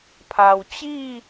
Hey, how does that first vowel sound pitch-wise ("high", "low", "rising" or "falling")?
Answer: low